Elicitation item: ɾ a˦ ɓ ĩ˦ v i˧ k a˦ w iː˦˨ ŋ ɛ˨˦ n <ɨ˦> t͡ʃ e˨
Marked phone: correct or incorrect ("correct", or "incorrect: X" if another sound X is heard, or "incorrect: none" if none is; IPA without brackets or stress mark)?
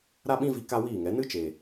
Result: correct